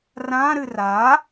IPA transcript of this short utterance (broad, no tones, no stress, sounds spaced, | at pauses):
r ã ɾ ɨ r a